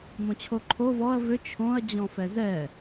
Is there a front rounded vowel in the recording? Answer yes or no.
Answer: yes